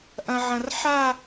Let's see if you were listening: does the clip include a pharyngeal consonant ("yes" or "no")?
yes